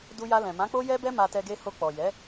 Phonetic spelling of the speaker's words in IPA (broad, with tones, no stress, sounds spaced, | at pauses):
d u˧ j a˧ l ɛ̃˨ m ã˨˦ k͡p o˦ j ɛ˦ b ɛ˦ m a˧ t ɛ˧ ɡ e˧ h o˧ k͡p ɔ˨ j ɛ˨˦